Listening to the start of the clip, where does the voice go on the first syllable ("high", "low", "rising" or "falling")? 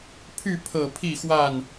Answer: falling